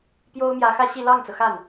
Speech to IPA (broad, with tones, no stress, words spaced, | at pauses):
pjo˥ʊ̯mjä˧˥xä˥ɕi˥˧ lɑ˥˩ŋt͡sɤ˩ xa˥˩n